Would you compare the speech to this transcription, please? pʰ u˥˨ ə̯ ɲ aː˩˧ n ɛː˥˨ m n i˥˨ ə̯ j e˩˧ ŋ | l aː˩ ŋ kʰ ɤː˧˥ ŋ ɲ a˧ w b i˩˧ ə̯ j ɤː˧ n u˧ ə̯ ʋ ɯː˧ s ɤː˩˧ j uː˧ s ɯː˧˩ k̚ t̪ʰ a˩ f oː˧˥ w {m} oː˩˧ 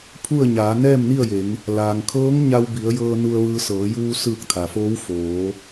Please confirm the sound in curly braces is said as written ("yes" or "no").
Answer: no